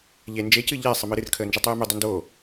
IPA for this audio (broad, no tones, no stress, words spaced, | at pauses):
ʎe nd͡ʒe cɨʎɛ sˤəmɨɾɨr kʰəːnd͡ʒetˤɨːmɨ dˤəndo